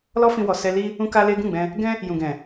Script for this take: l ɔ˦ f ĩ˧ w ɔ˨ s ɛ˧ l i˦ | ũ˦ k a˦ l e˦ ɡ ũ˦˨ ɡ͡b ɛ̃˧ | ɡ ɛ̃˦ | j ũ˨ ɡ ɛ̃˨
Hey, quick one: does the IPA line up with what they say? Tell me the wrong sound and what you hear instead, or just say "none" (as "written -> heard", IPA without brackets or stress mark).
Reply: none